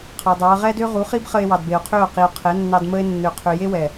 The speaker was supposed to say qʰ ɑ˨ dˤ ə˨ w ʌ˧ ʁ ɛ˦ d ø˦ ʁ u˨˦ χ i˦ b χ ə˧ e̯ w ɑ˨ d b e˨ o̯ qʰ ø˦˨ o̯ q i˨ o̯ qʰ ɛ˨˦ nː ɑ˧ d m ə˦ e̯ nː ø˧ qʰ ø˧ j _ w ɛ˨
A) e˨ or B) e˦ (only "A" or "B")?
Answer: B